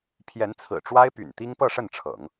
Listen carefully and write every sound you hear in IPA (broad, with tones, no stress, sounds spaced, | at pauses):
pʰ j ɛ˧˥ n t͡sʰ ɹ̩˨˩ ʈ͡ʂ w a˥ ɪ̯ p y̰˨˩ n t̪ i˥ ŋ p ɤ˥˧ ʂ ə˥˩ n ʈ͡ʂʰ ɤ̰˨˩˦ ŋ